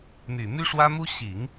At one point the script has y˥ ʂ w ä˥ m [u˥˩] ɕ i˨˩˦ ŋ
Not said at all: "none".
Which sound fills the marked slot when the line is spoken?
u˥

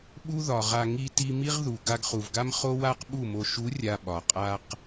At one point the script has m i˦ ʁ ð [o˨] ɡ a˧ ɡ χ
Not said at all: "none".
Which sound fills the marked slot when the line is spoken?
u˨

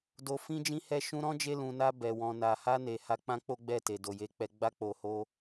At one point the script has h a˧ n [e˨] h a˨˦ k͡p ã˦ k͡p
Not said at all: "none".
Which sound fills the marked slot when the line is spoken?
e˨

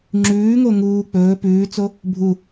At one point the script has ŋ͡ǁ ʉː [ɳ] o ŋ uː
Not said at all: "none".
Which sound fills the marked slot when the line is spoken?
ŋ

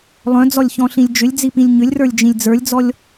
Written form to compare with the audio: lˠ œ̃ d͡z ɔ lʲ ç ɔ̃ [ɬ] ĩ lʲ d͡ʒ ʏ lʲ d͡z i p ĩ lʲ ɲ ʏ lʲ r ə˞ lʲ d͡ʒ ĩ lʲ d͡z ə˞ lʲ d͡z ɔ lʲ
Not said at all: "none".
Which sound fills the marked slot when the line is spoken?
ɬ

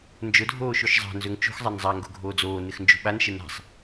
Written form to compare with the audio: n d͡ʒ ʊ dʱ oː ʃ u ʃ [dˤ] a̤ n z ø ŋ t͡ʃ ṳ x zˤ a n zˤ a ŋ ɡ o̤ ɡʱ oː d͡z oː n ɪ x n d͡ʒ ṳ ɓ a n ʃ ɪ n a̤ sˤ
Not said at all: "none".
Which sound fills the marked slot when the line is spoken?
zˤ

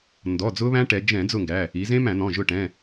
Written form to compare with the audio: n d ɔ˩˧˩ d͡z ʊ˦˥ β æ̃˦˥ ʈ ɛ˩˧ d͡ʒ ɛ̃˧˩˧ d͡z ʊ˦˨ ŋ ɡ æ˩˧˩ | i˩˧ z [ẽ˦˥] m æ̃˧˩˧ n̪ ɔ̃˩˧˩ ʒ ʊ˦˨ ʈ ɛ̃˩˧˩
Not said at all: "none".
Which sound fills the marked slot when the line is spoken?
ẽ˦˥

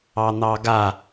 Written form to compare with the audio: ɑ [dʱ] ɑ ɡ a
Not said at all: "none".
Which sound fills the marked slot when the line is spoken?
n̪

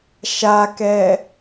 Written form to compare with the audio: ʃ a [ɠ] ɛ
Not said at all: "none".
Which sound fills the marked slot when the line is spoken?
k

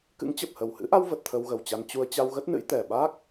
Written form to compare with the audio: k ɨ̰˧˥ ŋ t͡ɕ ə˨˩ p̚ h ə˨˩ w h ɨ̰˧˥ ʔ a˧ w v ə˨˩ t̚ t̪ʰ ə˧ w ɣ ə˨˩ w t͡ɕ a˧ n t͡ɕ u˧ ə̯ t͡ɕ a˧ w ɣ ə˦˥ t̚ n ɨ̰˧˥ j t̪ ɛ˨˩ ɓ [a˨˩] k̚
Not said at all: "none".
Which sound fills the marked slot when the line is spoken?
a˦˥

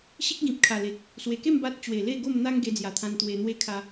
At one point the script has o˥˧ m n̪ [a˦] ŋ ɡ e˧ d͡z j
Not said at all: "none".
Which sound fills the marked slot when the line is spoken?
a˦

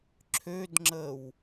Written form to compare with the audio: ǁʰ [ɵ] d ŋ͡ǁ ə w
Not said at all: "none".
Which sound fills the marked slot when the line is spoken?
ø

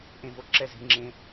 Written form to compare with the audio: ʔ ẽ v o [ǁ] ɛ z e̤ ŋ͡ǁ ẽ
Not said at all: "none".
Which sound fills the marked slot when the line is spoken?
ǁ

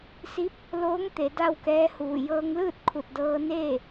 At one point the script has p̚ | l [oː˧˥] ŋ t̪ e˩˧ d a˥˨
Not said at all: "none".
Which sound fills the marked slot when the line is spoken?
oː˧˥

